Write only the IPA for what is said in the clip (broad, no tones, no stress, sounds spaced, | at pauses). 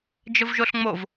d͡ʒ ə v ʒ o ɬ ŋ͡m o v